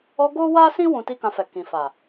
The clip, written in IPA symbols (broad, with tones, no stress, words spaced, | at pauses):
ɔ˧ ɡo˦wa˦sĩ˦ wũ˧ti˦kã˧fɛ˨ kĩ˨fa˨